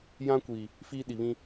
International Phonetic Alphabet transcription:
j ã˦ kʷ iː˨ | f iː˦ ɗ i˨ β ĩ˦

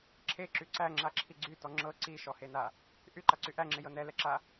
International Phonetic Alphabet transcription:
ǁʰ e ǁ y ǀ æ ŋ͡ǁ a ǁʰ i ɡ͡ǀ y t ɔ ŋ͡ǁ ɤ ǀ i ʃ ɔ h e n a | ʔ y ǃ a ǀ y ʔ æ ŋ͡ǁ e j ɤ n ɛ l ɛ ǁ a

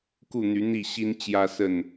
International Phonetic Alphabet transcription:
k u˥˨ n̪ y˨˦ n̪ i˥˨ ɕ i˦ n t͡ɕ j ä˦ s ə˥˨ n

